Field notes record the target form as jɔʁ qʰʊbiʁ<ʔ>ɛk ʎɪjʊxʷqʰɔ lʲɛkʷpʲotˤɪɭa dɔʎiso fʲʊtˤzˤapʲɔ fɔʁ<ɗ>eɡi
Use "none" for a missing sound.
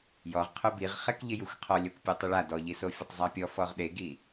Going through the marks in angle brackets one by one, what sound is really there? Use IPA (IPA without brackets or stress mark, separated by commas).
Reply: χ, ɗ